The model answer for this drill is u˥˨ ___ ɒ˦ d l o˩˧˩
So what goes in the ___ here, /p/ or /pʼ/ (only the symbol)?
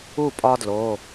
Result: pʼ